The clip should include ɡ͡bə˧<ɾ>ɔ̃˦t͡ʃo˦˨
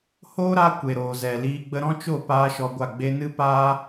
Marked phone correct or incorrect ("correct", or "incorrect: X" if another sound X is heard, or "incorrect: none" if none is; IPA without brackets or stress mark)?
correct